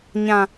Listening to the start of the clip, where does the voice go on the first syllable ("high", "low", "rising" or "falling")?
low